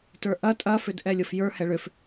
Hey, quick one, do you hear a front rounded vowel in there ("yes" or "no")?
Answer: yes